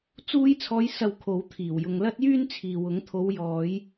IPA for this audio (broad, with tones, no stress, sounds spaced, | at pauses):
t͡s uː˧ j t͡sʰ ɔː˨˧ j s ɐ˨ w kʰ o˨˥ w t̪ʰ iː˨˩ w j ʊ˨ ŋ l ɐ˥ t̚ j yː˥ n t͡sʰ iː˨ w ʊ˨˥ ŋ t̪ʰ o˨˧ w j ɔː˨˧ j